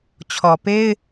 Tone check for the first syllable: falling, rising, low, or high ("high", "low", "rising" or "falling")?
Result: low